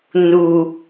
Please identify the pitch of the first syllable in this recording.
low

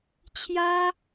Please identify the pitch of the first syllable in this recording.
high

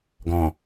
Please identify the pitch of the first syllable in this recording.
low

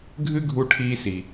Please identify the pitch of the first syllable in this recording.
high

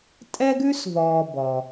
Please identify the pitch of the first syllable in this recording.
high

